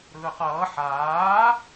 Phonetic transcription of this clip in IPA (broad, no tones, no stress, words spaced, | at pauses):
ɾɯːqʌː ħaː